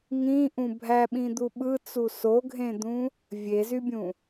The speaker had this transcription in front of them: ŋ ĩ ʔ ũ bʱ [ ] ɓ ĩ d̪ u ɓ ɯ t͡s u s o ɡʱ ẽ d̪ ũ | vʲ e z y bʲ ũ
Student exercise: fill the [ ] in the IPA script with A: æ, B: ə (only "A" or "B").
A